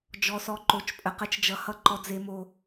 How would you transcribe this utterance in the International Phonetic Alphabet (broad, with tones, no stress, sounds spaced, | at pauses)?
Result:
d͡ʒ ɔ˨ s ɔ˨ ǃ o˨ t͡ʃ pʼ ə˨ q ə˧ t͡ʃ d͡ʒ ʌ˨ h ʌ˧ ǃ ɔ˨ d͡z e˨ m o˨